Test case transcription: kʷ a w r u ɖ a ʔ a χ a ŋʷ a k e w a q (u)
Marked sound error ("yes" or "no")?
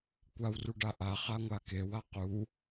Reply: no